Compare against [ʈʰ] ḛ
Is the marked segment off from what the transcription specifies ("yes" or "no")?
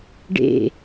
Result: yes